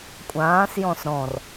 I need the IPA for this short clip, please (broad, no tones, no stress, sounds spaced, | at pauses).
kʷʼ ãː s j ɔ̃ s ɾ ɔ̃ r